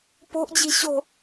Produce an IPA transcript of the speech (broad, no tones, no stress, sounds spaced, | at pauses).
p o̤ ʔ d͡ʑ i̤ ɕ o̤